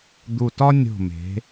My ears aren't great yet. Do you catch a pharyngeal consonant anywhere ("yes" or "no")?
no